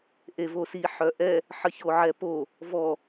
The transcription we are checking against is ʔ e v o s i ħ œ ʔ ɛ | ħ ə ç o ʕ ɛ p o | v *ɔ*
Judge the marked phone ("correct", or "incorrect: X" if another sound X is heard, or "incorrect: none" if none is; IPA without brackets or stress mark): correct